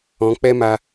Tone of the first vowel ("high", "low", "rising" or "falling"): rising